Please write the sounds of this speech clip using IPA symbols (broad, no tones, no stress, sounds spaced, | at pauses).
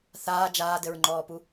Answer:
θ aː d͡ʒ aː d ɘ ɹ ŋ͡ǃ ɔː p u